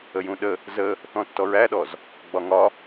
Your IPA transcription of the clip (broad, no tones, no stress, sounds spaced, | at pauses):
ə j ũ ɗ ə | z ə | θ ɔ̃ tː ɔ ɹ æ ɗ ɔ z | ɡ͡b ɒ ŋ ɒ